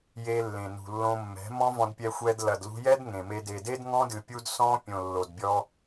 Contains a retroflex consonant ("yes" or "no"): no